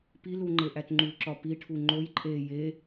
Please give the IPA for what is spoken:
p i l u ŋ͡ǃ e ʔ æ t ŋ͡ǃ u ǁ ɒ p i ʈʰ u ŋ͡ǃ o j ǃʼ e j e

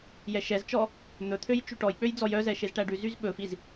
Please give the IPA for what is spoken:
j ɛ ʃ ɛ z t͡ʃ ɔ | n̪ ɵ t̪ʰ ø j t͡ʃ y ʈ ɔ j k͡p ø j d͡z ɔ j œ z ɛ ʃ e z ʈ æ ɖ ʉ z y z ɓ ɵ f i z

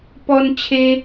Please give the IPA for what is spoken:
p ɔ˦ n t͡ɕʰ e˦

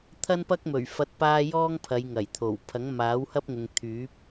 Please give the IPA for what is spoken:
t̪ʰ ɐ˥ n p ɐ˥ k̚ m ɵ˨˩ ɥ f ɐ˧ t̚ p aː˥ j ɔː˥ ŋ pʰ ɐ˨˧ j ŋ ɐ˨˩ j t̪ʰ o˨˩ w pʰ ɐ˨˥ ŋ m aː˨˥ w h ɐ˥ p̚ ŋ ʊ˨ ŋ t̪ʰ yː˨˥ p̚

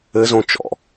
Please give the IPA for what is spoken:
ɘ z õ t͡ʃ ɔ̰

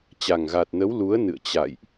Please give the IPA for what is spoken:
t͡ɕ a˨˩ ŋ ɣ a˨˩ t̚ n ə˨˦ w l u˨˦ ə̯ n ɨ̰˧˨ ə̯ t͡ɕ a̰˧˨ j ʔ

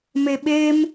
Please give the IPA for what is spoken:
m e ɓ e m

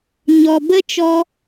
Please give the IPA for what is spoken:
ɲ ɔ˨ b ə˦ t͡ʃ ɔ˧

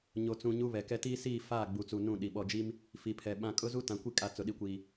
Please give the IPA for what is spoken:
ɲ o˨ t͡s ũ˨ ɲ u˦ β ɛ˨ k ɛ˦ t iː˦ s iː˦˨ f aː˦˨ ɡ͡b u˨ t͡s u˨ n ũ˦˨ ɗ i˨ ɓ ɔ˨ d͡ʒ i˦ m | f i˨ pʰ ɛ˨ ɓ ã˦ kʼ ʊ˦ z u˦ t ã˨ kʷ i˦ kʼ a˨˦ t͡s ʊ˨ ɗ i˨ kʷ iː˨

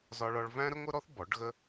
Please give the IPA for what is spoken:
z ɒ˥ ɭ ɒ˥ ɭ v æ̃˥ ɾ ə˥ ŋʷ ə˥ ɾ ɔ˥ θ b ɔ˩˥ ɖ ɣ ə˥

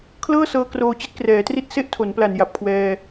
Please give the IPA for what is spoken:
kʰ l ɤː˥˩ s ɤː˧ k r oː˧ t͡ɕ i˦˥ t̚ k r ɛː˩˦ t r i˥˩ t̚ s e˥˩ ʔ tʰ o˩˦ n p l a˨˩ n j a˨˩ p̚ kʰ w ɛː˧

